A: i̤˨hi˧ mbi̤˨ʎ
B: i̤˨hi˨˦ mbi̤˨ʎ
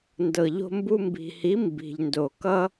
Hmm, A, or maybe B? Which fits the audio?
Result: B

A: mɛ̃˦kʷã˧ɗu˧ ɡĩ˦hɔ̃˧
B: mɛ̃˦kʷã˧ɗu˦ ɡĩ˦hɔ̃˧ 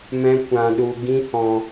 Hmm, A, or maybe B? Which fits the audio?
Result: A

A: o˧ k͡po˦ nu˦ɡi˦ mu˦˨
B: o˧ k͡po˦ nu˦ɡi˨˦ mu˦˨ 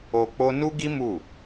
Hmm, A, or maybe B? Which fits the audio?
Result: A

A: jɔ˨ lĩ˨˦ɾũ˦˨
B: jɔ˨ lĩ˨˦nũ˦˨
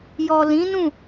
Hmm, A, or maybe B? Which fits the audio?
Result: B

